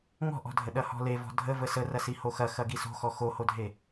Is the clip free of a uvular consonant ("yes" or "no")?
yes